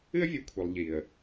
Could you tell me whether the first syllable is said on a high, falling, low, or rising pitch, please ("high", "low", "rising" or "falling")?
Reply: high